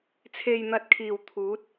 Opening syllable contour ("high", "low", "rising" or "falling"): low